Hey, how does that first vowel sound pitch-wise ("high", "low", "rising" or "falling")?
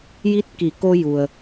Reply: rising